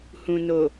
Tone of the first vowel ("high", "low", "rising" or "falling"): low